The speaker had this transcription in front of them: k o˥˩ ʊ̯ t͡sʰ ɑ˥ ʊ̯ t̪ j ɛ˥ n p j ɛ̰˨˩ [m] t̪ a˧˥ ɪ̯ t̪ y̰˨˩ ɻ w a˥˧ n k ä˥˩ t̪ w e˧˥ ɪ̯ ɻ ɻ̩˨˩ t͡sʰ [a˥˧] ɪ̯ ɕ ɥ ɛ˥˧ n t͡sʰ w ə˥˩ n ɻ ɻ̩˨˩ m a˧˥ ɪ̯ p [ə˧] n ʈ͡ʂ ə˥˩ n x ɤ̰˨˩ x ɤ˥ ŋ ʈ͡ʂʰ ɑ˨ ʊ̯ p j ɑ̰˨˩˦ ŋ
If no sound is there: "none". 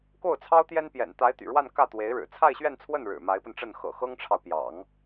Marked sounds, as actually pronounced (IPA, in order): n, a˥˧, ə˧

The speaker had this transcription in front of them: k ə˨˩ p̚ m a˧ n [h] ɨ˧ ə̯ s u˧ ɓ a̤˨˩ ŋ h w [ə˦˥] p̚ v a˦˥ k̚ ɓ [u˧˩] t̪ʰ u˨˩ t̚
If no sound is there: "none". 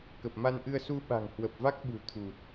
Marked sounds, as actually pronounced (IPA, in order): ʔ, ə˨˩, ṳ˨˩

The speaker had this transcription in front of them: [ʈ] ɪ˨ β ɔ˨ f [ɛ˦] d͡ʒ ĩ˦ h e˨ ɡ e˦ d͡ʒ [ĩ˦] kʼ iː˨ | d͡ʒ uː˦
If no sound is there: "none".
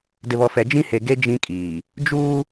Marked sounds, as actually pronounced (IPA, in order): d, ɛ˨, ĩ˦

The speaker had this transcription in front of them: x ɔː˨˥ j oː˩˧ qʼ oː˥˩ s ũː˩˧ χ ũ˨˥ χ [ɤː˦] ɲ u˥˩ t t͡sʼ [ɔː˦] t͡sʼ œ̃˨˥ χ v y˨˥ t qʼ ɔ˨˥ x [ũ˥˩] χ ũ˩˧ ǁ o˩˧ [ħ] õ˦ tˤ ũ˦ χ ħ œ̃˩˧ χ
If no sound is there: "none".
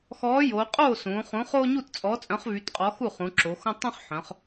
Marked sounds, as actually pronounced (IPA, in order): oː˦, ɔː˨˥, u˥˩, x

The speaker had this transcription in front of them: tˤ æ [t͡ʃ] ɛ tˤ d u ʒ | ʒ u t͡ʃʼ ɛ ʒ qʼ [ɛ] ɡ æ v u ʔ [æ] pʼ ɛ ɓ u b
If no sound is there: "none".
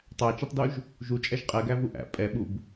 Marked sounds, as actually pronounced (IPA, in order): t͡ʃ, ɛ, æ̰

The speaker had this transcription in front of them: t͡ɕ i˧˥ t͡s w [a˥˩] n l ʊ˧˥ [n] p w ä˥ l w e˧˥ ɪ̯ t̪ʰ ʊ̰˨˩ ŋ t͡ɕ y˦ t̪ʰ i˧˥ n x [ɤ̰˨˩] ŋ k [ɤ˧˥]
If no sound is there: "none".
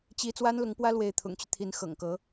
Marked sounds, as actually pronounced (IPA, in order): a˥, ŋ, ɤ̰˨˩, ɤ˧˥

